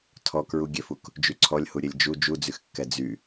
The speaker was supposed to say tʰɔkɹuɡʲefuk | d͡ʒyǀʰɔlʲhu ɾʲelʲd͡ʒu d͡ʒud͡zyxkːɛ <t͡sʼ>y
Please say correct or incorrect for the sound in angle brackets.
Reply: incorrect